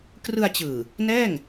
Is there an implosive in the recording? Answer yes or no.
no